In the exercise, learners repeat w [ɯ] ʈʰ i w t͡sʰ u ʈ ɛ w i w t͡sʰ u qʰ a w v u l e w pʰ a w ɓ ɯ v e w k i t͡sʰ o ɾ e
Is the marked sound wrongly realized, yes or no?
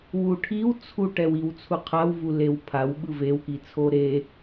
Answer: yes